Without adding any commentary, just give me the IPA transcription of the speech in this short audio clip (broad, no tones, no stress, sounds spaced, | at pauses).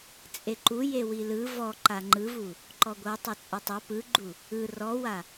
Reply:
t͡sʼ e ǃ u j e w i l ɯ v ɔ ǃ a ŋ͡ǃ ɯ v u | ǃ ɔ ɡʷ ɤ tˤ o t͡sʼ ɛ tˤ ɤ p ɯ ɡ͡ǃ u | ɯ r ɔ w a